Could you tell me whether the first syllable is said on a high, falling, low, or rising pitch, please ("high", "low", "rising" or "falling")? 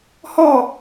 falling